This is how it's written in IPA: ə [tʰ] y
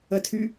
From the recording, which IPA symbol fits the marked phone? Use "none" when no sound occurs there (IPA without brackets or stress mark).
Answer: tʰ